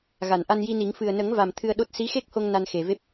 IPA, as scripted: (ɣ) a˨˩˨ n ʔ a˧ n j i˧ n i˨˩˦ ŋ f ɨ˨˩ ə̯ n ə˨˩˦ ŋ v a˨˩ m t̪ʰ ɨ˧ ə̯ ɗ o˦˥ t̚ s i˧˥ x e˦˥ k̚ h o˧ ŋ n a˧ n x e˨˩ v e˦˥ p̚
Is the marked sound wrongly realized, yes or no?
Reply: no